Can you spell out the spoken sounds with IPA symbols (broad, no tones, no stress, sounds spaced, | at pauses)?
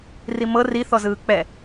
r i m ɤ r i θ ɔ z ɯː k͡p ɛ